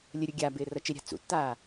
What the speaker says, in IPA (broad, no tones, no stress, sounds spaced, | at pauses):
lʲ ə ɾʲ o ɡʲ aː b ɪː r ʌ t͡ʃ ɪ ɾʲ a̤ t͡s ṵ tː aː